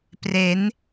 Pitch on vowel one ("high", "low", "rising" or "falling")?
rising